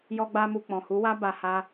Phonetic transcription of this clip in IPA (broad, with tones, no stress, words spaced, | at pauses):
jɔ˦ɡ͡ba˦mu˧ k͡pɔ̃˨hu˨˦wa˦ba˧ ha˦